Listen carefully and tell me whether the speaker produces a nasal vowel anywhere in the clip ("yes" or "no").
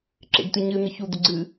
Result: no